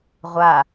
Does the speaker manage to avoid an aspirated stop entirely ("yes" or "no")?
yes